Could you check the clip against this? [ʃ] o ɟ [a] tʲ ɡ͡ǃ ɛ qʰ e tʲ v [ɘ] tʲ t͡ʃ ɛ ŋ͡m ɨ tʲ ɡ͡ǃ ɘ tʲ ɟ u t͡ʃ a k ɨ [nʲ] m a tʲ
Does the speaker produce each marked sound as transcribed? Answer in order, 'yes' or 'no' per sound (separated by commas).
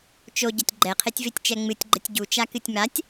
no, no, no, no